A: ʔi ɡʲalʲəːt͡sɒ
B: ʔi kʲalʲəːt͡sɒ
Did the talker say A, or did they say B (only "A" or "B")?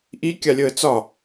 B